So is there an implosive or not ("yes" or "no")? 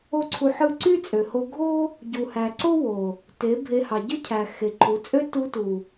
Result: no